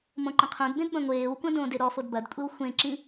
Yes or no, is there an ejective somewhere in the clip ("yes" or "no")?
yes